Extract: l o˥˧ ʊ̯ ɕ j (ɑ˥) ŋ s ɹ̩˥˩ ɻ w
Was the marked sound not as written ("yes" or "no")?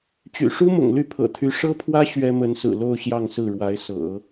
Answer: yes